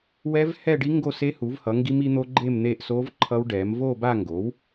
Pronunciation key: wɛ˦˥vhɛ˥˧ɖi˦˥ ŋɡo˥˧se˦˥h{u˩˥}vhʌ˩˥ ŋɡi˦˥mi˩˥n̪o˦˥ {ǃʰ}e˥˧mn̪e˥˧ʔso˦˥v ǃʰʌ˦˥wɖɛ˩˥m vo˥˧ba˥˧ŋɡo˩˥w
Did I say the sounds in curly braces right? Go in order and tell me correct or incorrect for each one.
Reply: correct, incorrect: ɡ͡ǃ

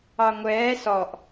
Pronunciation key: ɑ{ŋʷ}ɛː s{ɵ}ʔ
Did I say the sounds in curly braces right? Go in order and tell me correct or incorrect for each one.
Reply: correct, incorrect: ɔ

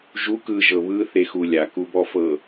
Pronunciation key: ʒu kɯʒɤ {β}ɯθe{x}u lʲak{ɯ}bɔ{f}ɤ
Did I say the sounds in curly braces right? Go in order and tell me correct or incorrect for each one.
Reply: correct, correct, incorrect: u, correct

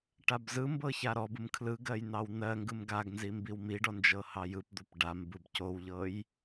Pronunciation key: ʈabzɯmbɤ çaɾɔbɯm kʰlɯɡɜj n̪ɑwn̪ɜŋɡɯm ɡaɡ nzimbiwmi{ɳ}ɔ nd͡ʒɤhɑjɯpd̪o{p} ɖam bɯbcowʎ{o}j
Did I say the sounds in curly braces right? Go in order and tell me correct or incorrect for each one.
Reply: incorrect: ɖ, correct, incorrect: ɤ

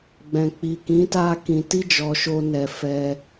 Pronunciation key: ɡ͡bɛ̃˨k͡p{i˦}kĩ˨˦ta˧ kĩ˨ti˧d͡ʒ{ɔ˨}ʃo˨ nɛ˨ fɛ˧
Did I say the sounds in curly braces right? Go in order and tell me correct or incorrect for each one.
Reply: incorrect: i˨, correct

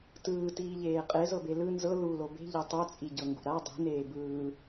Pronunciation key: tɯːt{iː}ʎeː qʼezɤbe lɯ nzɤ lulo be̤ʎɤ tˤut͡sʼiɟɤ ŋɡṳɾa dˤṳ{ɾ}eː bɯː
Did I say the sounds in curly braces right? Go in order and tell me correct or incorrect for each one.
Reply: correct, incorrect: n

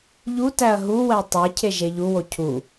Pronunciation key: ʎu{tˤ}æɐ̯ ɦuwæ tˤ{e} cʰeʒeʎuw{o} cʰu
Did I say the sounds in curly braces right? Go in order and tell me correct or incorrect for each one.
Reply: incorrect: t, correct, correct

